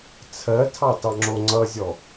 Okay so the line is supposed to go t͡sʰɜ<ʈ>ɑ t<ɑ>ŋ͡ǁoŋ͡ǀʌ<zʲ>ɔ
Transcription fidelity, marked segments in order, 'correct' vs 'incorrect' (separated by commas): incorrect, correct, correct